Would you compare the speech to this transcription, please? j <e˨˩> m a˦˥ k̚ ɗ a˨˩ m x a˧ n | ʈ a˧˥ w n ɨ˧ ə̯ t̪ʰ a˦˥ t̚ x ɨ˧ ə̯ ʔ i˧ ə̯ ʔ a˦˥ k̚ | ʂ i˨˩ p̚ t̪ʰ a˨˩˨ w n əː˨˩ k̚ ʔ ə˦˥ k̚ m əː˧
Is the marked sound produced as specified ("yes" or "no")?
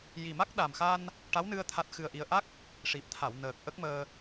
no